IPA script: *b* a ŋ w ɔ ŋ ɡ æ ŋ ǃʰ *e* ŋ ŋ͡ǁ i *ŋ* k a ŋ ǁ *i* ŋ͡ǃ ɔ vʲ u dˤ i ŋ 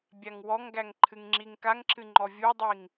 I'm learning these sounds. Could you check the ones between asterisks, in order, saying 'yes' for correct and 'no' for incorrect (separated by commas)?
no, no, yes, no